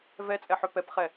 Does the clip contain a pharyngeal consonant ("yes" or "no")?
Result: yes